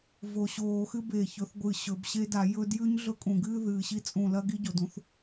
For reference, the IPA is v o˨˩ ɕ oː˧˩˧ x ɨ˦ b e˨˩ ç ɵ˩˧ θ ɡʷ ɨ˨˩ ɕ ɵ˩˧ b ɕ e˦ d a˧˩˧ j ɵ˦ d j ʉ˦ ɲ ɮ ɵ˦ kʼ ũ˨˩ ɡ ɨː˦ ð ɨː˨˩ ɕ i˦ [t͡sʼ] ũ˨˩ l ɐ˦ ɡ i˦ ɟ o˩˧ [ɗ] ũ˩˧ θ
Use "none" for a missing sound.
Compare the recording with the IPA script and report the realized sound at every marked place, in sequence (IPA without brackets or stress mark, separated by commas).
t͡sʼ, d